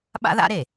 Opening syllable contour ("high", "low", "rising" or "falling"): high